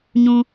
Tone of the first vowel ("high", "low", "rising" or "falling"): high